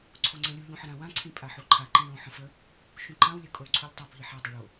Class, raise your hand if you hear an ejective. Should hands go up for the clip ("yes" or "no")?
yes